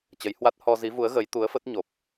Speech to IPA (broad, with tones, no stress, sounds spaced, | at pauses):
t͡ɕ ə˨˦ j h w a˦˥ t̚ h ɔ˧ z i˨˦ v u˨˦ ə̯ ɣ ə˨˦ j t̪ u˨˦ ə̯ f ə˦˥ t̚ ɲ o˨˩ p̚